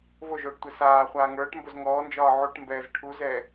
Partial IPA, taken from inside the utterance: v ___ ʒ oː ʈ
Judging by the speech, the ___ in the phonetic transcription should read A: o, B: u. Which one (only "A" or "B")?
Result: A